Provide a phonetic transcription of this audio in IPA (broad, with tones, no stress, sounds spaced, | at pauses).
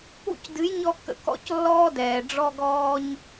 ṵ˦ c d ɨ˨˦ j ɲ ɔ˧ kː ə̰˨ k ɔ̰˦ c lː ɔː˦ d ɛː˨ ɖ͡ʐ ɔ˧ ɡ ɔː˧ ɲ